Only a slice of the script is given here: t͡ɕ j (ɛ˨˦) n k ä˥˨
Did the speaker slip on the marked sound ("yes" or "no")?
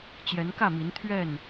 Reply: no